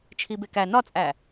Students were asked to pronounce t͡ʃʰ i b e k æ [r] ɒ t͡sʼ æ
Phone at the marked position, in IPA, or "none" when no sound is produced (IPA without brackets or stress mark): n